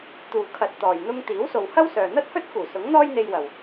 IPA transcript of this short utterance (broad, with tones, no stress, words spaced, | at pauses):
t̪uː˨kʰɐ˨˥t̚ t̪ɔː˨j n̪ʊ˧ŋ t̪iː˨˥wso˨whɐ˥wsœː˨ n̪ɐ˥t̚hɵ˥t̚kuː˨˩ sʊ˨˥ŋn̪ɔː˥jn̪e˧j wɐ˨w